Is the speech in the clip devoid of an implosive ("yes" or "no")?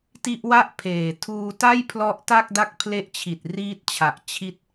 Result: yes